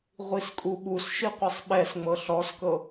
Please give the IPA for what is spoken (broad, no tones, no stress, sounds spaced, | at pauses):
ʁʷ i s kʼ u ɓ u s ʃ i qʷ ɛ sˤ ɓ ɛ s ŋ͡m ɤ ɬ ɔ s k ɤ